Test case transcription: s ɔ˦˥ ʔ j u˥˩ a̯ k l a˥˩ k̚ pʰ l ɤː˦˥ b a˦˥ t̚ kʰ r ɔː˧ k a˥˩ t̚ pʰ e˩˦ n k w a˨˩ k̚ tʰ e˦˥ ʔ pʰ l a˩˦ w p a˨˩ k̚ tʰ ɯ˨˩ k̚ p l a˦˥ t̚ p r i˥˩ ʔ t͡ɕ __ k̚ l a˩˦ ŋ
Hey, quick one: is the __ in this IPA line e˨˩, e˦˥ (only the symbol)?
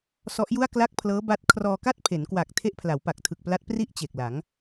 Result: e˨˩